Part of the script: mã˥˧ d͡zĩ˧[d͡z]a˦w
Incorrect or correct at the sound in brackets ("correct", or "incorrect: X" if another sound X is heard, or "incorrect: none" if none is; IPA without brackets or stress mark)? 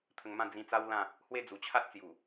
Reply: incorrect: t͡s